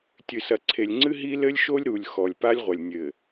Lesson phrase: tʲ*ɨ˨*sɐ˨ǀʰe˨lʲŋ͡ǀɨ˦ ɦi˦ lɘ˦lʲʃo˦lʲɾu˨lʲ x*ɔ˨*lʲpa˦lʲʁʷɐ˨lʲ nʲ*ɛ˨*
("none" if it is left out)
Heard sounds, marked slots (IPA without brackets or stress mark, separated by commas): ɨ˨, ɔ˨, ɘ˨